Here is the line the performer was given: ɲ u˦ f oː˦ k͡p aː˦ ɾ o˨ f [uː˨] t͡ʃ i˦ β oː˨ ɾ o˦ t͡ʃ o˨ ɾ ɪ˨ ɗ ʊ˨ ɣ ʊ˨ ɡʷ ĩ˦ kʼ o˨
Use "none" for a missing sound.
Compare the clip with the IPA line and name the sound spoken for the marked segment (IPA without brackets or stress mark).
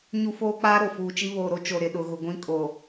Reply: uː˨